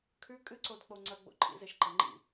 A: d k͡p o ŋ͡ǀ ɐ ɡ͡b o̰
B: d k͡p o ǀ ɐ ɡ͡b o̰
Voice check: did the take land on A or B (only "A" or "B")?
A